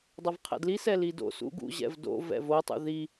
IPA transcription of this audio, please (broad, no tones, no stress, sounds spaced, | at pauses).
dˤ ʌ v qʰ ɛ̰ d l i s ɛ l i d o̰ s ṵ ɡ ṵ ʑ ɛ̰ v d o̰ v ɛ̰ v o tˤ ṵ ð i